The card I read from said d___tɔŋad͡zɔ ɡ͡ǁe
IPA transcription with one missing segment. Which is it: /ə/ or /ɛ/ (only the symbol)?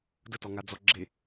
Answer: ə